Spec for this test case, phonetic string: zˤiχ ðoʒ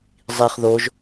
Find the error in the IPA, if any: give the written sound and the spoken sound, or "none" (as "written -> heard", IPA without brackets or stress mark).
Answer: none